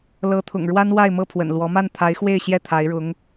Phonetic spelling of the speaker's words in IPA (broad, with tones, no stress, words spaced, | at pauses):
lɤ˧˥t̪ʰʊ̰˨˩ŋ ɻwa˥nwa˥˧ɪ̯mɤ˥˩ pʰwə̰˨˩nlwɔ˧˥ ma˥˩nt̪ʰa˧˥ɪ̯xwe˥˧ɪ̯ɕjɛ˥˩ t̪ʰa˧˥ɪ̯ɻʊ˧˥ŋ